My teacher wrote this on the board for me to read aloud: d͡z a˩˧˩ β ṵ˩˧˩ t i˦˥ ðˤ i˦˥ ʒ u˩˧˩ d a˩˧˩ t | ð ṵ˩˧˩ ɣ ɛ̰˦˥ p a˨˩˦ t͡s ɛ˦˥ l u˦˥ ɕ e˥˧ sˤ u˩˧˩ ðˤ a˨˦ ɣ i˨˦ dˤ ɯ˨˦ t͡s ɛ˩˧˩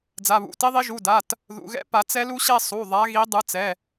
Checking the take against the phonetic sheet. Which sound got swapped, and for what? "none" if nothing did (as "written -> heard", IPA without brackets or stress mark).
none